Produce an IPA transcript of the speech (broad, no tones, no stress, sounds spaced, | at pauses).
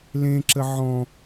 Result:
l ẽ ǁ ə ʕ ɔ̃